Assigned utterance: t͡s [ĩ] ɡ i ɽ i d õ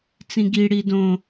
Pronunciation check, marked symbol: correct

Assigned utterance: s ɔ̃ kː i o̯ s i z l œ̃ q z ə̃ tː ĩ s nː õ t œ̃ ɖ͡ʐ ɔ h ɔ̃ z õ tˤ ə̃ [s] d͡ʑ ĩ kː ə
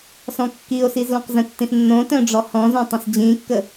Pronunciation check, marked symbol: correct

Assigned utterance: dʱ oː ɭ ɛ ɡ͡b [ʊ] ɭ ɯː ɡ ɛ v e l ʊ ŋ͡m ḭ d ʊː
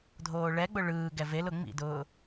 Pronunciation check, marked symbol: correct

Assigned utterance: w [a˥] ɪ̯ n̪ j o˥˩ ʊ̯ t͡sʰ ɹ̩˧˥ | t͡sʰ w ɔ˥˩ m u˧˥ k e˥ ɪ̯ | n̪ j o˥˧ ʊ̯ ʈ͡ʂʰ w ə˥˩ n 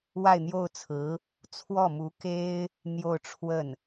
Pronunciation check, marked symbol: incorrect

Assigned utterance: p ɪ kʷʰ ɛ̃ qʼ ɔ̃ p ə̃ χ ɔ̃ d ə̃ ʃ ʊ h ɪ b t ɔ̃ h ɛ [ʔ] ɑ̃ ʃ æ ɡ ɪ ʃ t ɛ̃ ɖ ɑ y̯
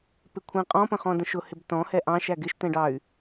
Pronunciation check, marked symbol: correct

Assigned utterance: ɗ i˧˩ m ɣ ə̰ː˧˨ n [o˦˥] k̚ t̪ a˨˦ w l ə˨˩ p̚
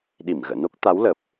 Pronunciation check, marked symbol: correct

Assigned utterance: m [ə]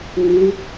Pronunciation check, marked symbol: incorrect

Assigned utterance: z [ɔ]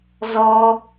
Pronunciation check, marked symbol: correct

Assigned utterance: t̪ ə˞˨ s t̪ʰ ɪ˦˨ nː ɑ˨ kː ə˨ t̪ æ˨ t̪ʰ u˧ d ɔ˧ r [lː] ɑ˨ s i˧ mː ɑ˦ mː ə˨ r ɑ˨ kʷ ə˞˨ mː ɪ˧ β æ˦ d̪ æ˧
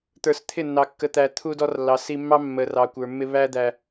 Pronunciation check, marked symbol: correct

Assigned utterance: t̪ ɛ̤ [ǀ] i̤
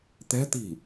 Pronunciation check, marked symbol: incorrect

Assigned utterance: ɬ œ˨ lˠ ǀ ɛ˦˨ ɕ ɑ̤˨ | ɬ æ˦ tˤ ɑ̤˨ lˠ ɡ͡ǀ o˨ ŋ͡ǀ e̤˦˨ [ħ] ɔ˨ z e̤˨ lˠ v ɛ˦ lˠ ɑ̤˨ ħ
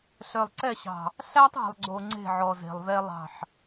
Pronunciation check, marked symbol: incorrect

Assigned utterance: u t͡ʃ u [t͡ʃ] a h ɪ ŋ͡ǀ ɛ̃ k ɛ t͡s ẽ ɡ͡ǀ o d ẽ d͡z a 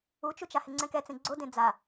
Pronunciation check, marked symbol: correct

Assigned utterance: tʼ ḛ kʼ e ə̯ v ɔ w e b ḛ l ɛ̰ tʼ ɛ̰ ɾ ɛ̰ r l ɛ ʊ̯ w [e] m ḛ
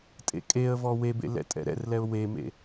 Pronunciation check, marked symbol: correct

